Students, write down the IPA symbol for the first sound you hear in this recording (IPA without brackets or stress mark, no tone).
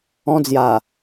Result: ɔ̃